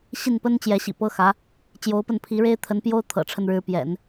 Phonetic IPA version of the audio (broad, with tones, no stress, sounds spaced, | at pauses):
ɕ i˥˩ n p ə˥ n t͡ɕ j ɛ˧˥ ɕ ḭ˨˩ p ɤ˥ x ä˧˥ | t͡ɕ j o˧˥ ʊ̯ p ə˥˩ n pʰ i˧˥ ɻ e˥ ɪ̯ t̪ʰ ə˧˥ n p j o˥ ʊ̯ t̪ʰ ɤ̰˨˩ ʈ͡ʂʰ ə˥˩ n ɻ ɻ̩˧˥ p j ɛ̰˨˩˦ n